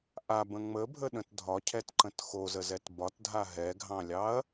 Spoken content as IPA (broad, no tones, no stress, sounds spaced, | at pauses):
ʔ a b ə̃ ŋ͡m ə bʱ ə ɗ ə̃ t dʱ ɒ cʰ ɛ t ǃ ə̃ t x o z ə z ɛ t b ɒ t dʱ a ɦ ɛ ɡʱ ɑ̃ lʲ ɑ ɐ̯